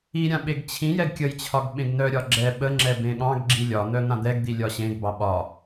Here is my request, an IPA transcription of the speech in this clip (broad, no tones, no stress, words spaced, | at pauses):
iɾʲã ɓeɡt͡ɕʰĩjɛɡ kʲəjt͡ɕʰɒɡ ɓẽɡnœɾʲɒ ɡ͡ǁɛ ɓəŋ͡ǁɛ bẽɠɑ̃ɡɡ͡ǁi lʲɒn̪œ n̪ãd̪ɛɡd̪i lʲɒɕẽɡbɑ ɓɒ